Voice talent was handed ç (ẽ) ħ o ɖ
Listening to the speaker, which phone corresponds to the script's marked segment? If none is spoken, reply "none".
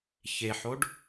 e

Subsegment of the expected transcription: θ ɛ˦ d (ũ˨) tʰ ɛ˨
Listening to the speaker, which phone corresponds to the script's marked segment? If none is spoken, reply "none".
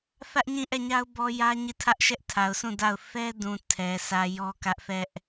ũ˨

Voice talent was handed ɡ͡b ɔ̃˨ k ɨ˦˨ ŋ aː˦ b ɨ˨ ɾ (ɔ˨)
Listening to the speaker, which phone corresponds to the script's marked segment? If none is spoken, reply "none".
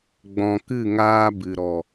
ɔ˨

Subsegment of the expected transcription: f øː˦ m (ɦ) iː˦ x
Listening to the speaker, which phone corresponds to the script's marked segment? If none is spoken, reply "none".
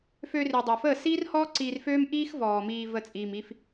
ʔ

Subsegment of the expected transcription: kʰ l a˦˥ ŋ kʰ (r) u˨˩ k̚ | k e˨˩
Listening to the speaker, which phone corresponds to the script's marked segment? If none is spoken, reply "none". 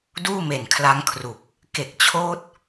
r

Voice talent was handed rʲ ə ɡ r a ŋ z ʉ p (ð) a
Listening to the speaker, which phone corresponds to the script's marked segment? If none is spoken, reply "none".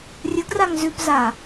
z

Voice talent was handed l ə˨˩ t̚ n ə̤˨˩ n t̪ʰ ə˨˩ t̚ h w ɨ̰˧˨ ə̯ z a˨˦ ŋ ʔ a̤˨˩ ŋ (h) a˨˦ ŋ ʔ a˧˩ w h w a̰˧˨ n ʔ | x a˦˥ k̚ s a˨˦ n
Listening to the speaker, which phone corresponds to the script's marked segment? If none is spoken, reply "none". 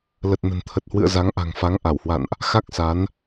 f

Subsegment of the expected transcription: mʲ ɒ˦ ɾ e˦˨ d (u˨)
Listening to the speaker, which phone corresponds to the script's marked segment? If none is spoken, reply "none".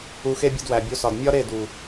u˨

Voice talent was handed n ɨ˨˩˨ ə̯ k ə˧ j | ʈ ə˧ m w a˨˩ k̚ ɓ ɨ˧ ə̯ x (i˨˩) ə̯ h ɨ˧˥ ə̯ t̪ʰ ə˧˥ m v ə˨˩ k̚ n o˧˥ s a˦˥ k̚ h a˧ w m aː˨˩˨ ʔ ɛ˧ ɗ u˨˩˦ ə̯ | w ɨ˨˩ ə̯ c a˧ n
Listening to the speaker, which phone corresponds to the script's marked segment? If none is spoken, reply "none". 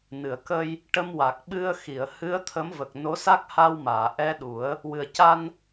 i˨˩˨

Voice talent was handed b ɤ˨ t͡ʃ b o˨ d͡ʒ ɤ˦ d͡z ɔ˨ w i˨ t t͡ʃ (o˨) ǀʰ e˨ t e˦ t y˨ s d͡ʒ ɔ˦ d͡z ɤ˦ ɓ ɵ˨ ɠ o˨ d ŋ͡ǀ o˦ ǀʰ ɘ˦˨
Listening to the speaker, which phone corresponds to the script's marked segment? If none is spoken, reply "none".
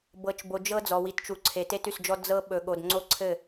u˨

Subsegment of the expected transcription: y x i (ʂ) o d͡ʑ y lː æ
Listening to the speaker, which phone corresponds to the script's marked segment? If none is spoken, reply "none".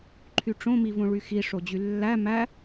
ʂ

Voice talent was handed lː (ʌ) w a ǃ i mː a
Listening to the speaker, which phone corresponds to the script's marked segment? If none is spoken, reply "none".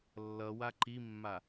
ʌ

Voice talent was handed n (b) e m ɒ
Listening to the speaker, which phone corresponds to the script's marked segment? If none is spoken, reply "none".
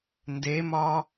d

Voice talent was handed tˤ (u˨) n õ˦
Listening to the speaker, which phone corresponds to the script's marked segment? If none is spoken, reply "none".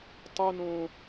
u˦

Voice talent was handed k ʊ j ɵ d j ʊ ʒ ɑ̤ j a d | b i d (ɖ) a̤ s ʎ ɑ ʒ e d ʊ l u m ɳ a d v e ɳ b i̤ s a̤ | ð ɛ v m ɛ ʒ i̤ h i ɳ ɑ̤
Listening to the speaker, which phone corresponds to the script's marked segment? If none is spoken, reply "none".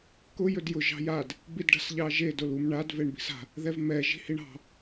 ɖ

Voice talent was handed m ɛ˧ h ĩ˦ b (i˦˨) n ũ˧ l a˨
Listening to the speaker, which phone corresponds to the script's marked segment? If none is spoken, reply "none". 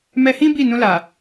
i˦˨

